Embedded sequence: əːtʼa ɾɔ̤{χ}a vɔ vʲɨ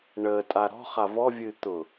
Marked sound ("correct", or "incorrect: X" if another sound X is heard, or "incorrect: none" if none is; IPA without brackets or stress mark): correct